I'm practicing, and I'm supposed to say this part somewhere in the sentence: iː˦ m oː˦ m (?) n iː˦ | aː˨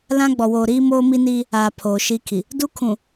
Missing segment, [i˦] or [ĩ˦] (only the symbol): i˦